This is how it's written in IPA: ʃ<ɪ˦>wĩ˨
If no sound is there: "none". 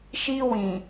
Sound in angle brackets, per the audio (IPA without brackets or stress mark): i˦